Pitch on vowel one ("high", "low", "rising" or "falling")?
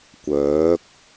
rising